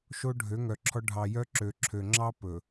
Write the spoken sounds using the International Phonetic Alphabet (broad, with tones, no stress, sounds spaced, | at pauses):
ʃ o˦ ɖʱ ø˨˦ ŋ œ˨ ǁʰ ɔ˦ ɖʱ ɑ˨ j œ˦ ǁ ø˨ ǁʰ ø˨ ŋ͡ǁ ɑ˦ p ɵ˨